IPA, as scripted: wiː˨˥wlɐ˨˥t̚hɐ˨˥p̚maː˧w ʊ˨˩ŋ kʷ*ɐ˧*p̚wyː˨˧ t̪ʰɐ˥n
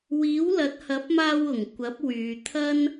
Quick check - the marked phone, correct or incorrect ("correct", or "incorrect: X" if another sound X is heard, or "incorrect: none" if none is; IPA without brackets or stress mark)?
incorrect: ɐ˨˥